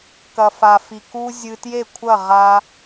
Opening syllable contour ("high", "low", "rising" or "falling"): low